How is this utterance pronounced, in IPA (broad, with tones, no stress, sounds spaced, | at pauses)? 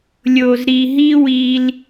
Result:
lʲ o˨ z ɾ i˨ ɦ i˦ w i˧ l